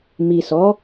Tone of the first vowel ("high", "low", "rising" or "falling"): low